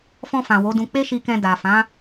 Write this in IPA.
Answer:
f ɔ̃˧ f ã˨ w o˨˦ d ũ˧ k͡p e˦ ʃ i˧ k ɛ̃˧ d a˨ f ã˨˦

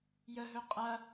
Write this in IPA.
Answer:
j ə ɦ ɵ qʼ ɐ

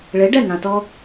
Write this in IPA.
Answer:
ɭ e˩˥ ɖ ɛ˥˩ ŋ ã˩ t ɔ˧

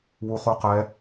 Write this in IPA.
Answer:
w u χ u q ɛ

